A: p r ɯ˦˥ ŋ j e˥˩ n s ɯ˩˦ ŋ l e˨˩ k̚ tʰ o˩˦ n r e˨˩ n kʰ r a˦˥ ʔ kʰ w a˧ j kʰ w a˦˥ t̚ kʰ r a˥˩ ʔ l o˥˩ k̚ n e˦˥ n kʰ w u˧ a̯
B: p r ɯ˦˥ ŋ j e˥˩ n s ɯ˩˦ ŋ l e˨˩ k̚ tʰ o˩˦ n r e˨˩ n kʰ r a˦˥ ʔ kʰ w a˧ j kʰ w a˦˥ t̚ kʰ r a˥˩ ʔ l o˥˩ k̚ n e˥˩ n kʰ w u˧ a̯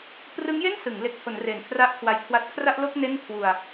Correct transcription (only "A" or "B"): B